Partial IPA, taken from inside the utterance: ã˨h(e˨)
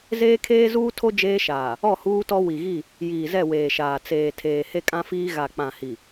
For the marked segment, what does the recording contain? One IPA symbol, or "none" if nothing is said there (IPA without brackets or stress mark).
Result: i˨